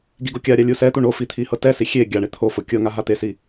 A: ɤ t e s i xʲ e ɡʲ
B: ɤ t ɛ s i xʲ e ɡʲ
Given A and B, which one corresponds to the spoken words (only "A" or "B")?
B